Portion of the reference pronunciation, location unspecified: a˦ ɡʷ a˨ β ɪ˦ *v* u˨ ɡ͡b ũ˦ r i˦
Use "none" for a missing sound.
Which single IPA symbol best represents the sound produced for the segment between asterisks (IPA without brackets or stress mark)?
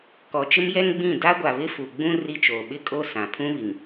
f